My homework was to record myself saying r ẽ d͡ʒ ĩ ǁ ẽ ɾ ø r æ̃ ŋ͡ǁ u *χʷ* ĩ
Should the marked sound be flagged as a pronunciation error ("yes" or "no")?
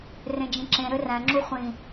no